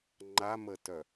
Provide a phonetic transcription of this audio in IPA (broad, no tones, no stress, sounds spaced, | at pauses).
ŋ͡ǃ a m ə t œ